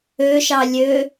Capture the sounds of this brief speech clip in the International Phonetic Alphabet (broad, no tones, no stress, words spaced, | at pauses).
øʃɑ lʲø